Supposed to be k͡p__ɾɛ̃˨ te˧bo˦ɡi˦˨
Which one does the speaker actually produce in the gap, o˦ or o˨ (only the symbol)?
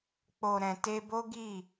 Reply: o˨